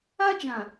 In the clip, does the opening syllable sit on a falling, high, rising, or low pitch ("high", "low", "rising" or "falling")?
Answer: high